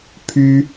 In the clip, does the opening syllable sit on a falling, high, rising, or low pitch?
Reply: high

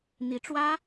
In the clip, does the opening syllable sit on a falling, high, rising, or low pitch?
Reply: rising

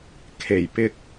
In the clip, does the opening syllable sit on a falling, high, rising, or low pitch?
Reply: low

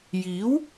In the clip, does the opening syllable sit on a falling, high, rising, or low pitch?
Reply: rising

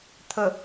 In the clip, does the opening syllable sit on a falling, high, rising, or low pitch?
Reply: low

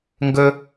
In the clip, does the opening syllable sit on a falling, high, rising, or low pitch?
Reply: high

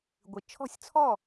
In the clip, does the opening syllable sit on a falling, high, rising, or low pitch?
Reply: low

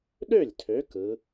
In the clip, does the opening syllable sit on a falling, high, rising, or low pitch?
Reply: falling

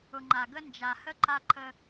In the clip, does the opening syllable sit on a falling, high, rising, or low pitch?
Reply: low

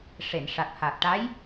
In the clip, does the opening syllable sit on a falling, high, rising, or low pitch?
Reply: low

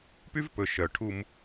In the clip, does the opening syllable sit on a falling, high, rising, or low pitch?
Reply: high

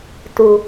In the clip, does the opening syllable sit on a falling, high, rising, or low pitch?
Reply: low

